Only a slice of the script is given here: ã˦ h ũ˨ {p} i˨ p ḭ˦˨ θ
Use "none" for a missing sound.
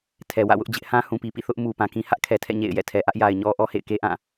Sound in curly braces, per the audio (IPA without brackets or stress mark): p